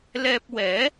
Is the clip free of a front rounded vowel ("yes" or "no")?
yes